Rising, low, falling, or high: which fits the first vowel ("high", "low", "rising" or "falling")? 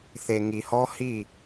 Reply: low